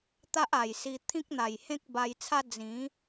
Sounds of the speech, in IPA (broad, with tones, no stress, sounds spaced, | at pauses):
t̪ a˦ ʔ a˨˩ j s i˧ t̪ʰ ĩ˦ k̚ n̪ a˨˩ j h ẽ˦ k̚ b a˧ j t͡sʰ a˦ d͡z ĩ˨˦